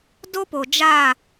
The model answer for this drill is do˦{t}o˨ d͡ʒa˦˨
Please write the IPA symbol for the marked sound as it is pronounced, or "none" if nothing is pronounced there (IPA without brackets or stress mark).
p